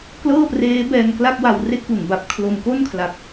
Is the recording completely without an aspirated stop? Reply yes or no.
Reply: no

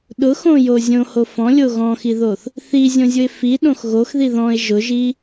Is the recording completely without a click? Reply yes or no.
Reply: yes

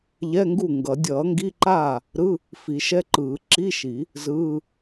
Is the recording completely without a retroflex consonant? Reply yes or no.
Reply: yes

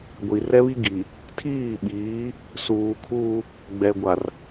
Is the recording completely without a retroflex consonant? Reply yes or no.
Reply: yes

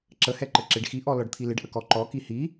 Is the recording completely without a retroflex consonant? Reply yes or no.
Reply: no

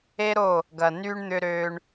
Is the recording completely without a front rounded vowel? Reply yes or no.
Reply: no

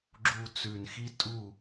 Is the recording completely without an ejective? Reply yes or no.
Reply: no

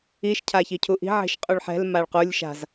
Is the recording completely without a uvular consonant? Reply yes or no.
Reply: no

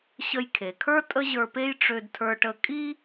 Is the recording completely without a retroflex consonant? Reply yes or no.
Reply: no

